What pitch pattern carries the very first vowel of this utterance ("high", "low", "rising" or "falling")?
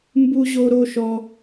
high